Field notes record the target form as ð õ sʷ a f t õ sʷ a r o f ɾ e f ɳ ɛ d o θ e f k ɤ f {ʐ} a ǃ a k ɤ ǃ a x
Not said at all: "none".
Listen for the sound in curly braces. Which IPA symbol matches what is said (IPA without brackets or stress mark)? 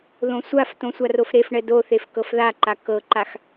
ð